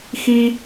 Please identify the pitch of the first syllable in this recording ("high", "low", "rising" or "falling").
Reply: high